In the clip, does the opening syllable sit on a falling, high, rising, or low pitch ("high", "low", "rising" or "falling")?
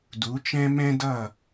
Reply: rising